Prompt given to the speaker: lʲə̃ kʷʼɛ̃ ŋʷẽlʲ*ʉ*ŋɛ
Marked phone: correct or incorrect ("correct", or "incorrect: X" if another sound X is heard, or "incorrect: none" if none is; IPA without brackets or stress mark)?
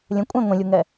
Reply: incorrect: u